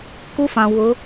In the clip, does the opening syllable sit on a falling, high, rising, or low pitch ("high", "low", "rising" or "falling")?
high